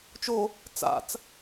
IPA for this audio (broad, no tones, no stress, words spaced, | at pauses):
t͡ʃo | t͡sa̰t͡s